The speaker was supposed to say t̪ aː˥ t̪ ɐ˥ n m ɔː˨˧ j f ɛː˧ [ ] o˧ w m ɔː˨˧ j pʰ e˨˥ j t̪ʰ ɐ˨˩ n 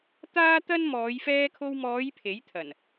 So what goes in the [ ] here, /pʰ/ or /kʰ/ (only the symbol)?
kʰ